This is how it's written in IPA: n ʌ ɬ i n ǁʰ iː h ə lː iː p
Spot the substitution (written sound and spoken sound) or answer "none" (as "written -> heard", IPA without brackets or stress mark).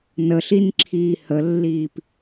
ʌ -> ə